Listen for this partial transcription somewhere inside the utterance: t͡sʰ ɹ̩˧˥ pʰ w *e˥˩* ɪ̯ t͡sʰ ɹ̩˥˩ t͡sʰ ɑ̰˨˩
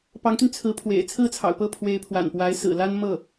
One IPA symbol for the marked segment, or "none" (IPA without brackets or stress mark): ḛ˨˩